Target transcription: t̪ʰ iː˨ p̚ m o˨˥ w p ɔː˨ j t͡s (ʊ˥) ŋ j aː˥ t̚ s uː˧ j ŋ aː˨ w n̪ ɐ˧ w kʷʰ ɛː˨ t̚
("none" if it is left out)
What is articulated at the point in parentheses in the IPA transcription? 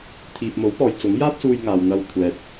ʊ˨˥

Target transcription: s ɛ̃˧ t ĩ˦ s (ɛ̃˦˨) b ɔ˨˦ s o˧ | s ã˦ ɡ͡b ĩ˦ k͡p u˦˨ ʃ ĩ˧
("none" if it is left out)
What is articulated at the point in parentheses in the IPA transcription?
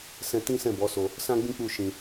ɛ̃˦˨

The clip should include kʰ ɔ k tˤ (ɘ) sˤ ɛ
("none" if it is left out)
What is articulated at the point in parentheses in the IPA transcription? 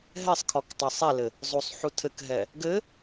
ɛ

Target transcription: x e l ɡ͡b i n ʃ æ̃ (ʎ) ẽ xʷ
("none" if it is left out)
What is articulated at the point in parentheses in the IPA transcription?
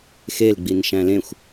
l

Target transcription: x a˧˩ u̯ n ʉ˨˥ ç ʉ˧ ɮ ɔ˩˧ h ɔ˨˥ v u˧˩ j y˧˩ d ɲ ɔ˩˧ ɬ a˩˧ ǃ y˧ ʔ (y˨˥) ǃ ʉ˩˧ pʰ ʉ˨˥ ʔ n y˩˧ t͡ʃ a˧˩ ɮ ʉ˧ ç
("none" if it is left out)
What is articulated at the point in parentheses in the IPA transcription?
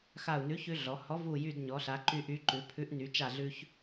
y˨˥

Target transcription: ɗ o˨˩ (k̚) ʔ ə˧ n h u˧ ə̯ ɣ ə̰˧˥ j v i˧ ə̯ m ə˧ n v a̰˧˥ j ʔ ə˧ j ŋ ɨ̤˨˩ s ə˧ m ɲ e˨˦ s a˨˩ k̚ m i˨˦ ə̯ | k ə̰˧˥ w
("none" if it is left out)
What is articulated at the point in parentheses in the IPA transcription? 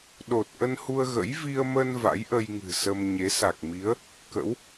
t̚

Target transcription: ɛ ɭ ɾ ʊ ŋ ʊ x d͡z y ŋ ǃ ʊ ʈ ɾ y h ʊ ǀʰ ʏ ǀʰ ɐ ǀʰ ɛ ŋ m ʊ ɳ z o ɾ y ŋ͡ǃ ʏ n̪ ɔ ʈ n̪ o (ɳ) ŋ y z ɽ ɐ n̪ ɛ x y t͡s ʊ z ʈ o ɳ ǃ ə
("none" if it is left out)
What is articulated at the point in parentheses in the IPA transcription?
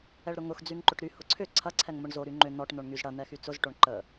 ɳ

